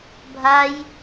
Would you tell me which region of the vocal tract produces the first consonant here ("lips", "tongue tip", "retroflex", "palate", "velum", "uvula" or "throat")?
lips